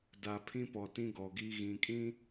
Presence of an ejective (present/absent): present